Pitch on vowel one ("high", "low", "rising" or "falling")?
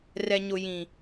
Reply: low